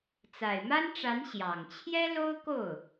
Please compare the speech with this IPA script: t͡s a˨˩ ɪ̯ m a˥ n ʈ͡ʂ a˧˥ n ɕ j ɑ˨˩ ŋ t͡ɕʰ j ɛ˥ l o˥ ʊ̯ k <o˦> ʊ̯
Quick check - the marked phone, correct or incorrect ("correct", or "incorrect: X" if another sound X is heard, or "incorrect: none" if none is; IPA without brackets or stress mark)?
incorrect: o˥˩